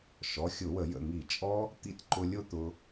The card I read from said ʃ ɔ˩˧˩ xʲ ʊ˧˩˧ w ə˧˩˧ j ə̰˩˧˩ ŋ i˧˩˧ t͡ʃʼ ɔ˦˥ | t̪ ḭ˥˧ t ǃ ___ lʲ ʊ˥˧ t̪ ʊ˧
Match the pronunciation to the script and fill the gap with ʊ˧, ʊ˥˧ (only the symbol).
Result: ʊ˧